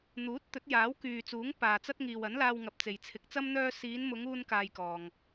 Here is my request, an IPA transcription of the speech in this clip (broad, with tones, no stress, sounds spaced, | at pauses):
n̪ uː˨˥ t̚ t̪ ɵ˨˥ t̚ j aː˨˥ w k yː˨ t͡s uː˨˥ ŋ p aː˨ t͡s ɐ˥ t̚ ŋ iː˨ w ɐ˨˥ n l aː˧ w ŋ ɐ˨ p̚ t͡s e˨ j t͡sʰ ɪ˨˥ k̚ t͡s ɐ˥ m n̪ œː˧ s iː˨˧ n m ʊ˨˧ ŋ uː˥ n k aː˧ j k ɔː˨ ŋ